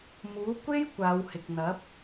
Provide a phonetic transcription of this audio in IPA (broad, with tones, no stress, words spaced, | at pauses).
muː˨˥kʷe˥j kʷaː˨˧whɪ˨k̚n̪ɐ˨˥p̚